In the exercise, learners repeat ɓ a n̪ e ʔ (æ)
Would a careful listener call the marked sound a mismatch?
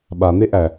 no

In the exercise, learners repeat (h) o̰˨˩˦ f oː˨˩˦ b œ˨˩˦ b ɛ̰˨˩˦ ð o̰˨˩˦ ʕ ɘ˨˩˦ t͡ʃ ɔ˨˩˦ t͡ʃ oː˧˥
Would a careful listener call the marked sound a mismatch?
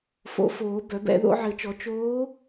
yes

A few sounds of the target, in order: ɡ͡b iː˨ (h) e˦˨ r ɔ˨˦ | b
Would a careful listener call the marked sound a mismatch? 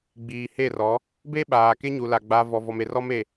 no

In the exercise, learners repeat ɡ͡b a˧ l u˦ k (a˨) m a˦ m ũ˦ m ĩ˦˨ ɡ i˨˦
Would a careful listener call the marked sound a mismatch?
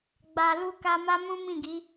yes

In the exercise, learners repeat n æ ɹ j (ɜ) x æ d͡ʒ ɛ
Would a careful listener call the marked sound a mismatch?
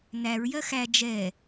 no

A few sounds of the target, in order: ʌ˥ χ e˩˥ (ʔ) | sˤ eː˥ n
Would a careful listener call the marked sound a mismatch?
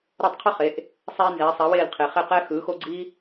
no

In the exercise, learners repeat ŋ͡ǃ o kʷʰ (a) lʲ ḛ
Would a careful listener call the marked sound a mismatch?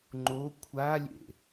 no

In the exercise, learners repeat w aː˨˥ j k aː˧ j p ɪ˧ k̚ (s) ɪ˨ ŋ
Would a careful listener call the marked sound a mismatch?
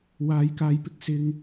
no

